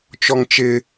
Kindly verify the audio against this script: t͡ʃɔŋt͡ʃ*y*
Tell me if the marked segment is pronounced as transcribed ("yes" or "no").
no